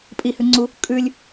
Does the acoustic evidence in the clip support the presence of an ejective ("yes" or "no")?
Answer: yes